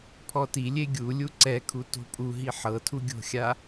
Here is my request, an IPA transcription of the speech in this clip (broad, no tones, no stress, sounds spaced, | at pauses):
pʰ ɔ t i lʲ e ɡʲ u lʲ u ǀ ɛ kʰ u t o̤ pʼ u ɦ i ħ ɤ tʰ u ɡʲ o̤ xʲ a